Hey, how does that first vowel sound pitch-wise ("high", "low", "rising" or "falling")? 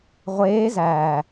rising